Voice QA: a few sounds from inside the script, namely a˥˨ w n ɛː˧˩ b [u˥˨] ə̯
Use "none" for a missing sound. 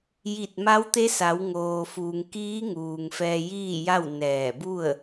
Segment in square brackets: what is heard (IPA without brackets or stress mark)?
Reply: u˥˨